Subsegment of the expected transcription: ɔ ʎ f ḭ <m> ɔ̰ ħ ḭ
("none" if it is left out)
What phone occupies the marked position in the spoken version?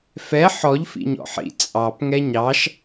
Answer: ɲ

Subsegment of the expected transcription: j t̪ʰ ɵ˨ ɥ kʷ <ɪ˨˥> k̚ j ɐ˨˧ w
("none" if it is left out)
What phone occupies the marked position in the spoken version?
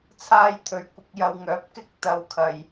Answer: ɪ˨˥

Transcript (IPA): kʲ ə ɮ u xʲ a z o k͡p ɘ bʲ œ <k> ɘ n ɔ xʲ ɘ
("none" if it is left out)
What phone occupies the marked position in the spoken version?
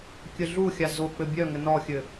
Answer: ŋ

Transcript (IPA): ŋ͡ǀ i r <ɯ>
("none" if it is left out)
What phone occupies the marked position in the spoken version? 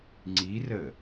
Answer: ə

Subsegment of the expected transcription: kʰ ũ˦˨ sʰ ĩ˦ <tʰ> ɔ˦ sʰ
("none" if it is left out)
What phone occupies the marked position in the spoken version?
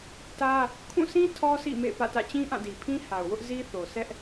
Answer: tʰ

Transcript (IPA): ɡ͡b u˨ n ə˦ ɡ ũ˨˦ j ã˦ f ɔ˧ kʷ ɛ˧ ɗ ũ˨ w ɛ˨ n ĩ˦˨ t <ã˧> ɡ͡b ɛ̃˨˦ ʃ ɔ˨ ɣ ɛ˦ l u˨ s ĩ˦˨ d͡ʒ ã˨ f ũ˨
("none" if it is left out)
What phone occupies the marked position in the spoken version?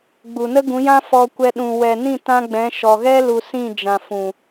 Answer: ã˧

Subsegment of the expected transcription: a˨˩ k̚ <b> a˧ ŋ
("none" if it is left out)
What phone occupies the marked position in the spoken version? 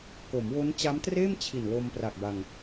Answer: b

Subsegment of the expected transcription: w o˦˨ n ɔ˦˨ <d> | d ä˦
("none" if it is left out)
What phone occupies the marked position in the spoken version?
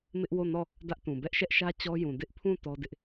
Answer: none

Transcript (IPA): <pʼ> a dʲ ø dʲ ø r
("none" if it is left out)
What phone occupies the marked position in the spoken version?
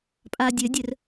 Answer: pʼ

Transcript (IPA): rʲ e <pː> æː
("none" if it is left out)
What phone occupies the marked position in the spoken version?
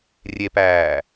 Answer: p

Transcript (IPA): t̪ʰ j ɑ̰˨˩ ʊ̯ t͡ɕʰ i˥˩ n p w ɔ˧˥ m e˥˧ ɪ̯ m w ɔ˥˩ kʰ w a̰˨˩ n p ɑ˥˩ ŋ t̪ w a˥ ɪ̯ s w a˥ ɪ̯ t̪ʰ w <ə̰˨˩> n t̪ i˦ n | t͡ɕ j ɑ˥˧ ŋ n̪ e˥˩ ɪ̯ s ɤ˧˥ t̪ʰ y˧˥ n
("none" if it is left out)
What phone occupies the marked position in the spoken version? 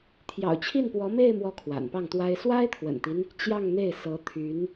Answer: ə̰˨˩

